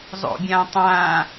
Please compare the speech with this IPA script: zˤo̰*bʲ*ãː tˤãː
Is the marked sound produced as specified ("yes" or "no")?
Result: yes